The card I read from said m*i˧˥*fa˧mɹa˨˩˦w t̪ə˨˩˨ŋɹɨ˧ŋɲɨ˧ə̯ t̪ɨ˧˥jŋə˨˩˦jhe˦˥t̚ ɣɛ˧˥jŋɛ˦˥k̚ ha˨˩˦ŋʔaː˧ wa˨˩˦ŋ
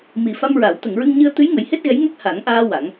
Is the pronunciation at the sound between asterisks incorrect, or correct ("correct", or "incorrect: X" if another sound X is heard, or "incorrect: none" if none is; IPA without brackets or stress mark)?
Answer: incorrect: i˨˩